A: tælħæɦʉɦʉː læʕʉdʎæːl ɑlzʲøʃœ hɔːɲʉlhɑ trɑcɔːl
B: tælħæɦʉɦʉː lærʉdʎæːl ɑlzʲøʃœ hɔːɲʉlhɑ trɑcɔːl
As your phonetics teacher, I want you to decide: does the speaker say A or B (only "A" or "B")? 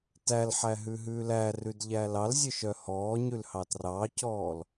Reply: B